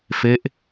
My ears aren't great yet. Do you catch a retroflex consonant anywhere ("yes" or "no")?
no